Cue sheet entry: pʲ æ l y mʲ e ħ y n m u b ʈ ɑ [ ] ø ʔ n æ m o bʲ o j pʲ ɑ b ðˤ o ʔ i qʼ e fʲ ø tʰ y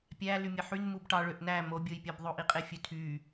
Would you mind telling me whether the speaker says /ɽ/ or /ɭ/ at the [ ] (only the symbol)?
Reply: ɭ